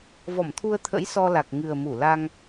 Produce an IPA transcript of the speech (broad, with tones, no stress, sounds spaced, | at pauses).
v ɔ˧˩ m t̪ʰ u˧ ə̯ t̪ʰ ə̰˧˥ j s ɔ˧ l a˨˩ k̚ ŋ ɨ˨˩ ə̯ m u˧˩ l a˧ ŋ